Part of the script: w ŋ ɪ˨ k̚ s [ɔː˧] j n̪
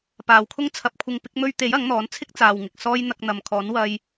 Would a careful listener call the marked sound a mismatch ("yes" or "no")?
no